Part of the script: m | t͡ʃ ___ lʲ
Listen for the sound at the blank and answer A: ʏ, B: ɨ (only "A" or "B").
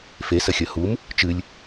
B